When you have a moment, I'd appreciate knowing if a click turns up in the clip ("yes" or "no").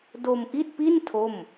no